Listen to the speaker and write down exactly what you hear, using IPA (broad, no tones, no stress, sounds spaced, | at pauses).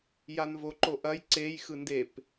j a n v o ǃ o ʔ ɐ j ǀ e j x ɯ n d e p